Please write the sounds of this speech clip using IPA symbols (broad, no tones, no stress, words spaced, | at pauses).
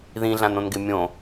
ðĩɮãnõnɡɪ mʲõ